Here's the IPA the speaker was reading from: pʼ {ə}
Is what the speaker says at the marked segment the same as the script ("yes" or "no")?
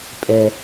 no